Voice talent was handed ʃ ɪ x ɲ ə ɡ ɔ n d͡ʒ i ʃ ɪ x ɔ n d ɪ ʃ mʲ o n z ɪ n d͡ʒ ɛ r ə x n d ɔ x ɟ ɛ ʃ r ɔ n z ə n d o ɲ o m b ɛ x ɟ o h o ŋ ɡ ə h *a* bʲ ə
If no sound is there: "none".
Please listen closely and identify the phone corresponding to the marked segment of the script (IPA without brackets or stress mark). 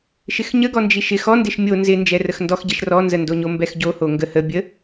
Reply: ə